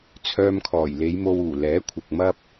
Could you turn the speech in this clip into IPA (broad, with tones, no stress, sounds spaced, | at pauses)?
t͡sʰ œː˧ m kʰ ɔː˨˩ j l e˨˧ j m o˧ w uː˨˩ l ɛː˨˥ kʷʰ ɪ˨ k̚ m ɐ˥ p̚